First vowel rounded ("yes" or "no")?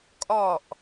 yes